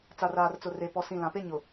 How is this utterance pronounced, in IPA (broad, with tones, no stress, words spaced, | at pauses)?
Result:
t͡sa˨raː˨rt͡sʊ˨ re˨ pɔ˨sĩ˨ lã˨pe˦ ɲʊ˨